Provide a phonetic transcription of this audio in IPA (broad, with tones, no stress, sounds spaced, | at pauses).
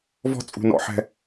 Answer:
v ɔ̤˥ t͡sʼ ṳ˦ n ɔ̰˦ ħ ɛ̤˦